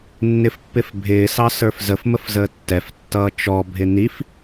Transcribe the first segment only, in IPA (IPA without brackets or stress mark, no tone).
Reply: nː